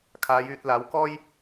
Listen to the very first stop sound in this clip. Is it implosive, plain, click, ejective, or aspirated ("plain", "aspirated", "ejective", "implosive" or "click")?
aspirated